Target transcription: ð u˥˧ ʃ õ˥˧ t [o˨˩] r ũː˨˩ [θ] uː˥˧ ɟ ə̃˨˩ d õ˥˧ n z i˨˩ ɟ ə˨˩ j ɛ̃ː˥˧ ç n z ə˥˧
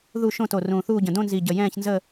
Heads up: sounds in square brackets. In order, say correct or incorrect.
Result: correct, correct

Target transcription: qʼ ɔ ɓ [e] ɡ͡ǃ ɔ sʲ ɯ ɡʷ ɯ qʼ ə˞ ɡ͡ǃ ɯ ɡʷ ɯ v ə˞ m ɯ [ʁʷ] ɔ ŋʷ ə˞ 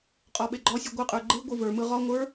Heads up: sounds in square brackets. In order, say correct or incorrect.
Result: correct, incorrect: ʁ

